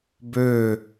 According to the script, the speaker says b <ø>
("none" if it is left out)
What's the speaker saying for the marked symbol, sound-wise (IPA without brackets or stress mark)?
ø